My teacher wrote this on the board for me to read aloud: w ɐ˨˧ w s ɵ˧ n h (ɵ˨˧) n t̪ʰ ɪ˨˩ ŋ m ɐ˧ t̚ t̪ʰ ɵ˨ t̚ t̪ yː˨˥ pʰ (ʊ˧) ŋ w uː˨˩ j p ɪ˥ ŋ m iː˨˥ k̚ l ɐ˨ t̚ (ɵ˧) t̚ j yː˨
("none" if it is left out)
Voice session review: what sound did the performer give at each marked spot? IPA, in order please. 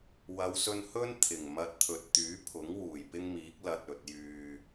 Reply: ɵ˥, ʊ˨˥, ɵ˨

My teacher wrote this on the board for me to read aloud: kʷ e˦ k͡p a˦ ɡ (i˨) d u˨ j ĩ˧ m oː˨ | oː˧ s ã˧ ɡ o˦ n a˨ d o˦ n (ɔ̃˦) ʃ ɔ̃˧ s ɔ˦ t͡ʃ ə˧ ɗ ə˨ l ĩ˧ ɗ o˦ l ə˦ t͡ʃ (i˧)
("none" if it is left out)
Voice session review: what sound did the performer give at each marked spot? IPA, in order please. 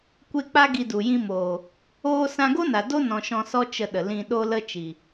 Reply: i˧, ɔ̃˨, i˨

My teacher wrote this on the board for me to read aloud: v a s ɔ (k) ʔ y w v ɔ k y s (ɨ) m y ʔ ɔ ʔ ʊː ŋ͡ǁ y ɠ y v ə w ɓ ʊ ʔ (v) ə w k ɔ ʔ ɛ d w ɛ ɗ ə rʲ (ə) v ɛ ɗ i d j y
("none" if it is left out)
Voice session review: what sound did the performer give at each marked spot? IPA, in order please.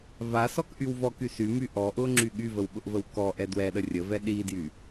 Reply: k, y, v, ə

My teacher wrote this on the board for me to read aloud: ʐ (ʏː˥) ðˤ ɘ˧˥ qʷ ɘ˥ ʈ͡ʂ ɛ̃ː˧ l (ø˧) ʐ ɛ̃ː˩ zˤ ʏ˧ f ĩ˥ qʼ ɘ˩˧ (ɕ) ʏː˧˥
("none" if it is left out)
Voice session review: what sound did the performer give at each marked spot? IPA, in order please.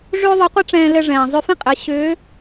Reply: ʏː˥, ɘ˧, ɕ

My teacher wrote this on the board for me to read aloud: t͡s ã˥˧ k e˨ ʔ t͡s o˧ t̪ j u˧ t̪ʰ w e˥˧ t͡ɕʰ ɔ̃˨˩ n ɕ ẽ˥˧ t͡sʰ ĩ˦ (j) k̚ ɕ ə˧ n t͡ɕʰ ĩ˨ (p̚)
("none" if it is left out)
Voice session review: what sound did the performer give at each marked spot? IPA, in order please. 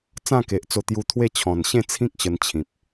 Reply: none, p̚

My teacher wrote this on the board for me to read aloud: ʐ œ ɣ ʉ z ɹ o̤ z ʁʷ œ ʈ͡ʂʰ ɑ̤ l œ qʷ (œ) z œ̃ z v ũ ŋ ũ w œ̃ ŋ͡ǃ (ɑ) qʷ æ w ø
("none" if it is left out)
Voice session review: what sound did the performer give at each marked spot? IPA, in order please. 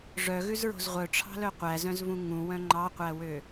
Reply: æ, ɑ

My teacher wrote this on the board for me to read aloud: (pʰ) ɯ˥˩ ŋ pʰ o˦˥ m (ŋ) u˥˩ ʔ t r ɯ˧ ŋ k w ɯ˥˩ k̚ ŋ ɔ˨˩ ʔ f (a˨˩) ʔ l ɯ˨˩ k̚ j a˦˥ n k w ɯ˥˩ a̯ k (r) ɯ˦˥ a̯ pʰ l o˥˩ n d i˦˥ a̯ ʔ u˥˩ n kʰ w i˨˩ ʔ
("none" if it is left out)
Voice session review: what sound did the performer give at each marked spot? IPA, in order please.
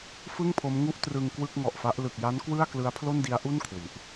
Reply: f, ŋ, a˦˥, l

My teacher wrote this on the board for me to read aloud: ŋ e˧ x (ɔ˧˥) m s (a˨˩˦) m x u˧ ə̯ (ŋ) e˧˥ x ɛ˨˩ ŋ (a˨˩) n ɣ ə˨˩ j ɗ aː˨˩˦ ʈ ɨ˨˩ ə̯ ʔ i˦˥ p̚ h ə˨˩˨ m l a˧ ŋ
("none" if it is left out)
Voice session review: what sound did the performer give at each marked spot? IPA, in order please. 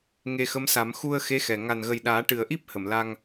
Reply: ə˧˥, a˨˩˦, x, a˨˩

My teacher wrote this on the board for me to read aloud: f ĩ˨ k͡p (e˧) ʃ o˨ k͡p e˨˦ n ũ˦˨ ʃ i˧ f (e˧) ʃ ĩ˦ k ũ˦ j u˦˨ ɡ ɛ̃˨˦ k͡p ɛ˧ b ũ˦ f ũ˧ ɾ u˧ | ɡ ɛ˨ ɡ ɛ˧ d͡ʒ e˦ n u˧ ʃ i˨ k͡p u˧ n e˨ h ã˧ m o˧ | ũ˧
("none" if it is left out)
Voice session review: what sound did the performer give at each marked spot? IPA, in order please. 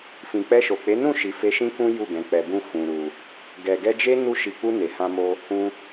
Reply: ɛ˧, e˧

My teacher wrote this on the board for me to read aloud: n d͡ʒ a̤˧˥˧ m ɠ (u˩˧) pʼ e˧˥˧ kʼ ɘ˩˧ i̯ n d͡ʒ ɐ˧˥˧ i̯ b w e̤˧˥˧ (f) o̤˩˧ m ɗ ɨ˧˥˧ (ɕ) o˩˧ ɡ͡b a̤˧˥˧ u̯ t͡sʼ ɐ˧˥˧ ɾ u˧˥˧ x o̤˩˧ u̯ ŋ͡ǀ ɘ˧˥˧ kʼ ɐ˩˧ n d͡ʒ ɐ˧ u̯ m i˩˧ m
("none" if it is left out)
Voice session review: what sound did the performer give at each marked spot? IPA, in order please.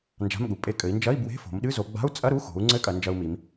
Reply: u˩˧, f, z

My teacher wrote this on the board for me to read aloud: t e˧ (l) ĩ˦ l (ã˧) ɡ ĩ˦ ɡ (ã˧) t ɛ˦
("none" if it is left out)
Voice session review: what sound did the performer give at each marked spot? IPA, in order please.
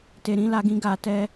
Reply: ɾ, a˧, a˧

